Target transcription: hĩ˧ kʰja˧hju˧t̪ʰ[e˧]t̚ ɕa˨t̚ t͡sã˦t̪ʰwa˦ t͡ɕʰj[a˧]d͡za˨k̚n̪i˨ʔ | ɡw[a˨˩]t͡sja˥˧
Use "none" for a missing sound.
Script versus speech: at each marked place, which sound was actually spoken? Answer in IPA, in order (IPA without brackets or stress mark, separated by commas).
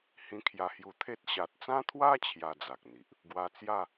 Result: e˦, a˧, a˧